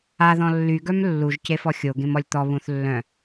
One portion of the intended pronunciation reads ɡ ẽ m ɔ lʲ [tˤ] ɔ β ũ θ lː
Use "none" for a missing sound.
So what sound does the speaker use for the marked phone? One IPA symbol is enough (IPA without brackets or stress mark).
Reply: t̪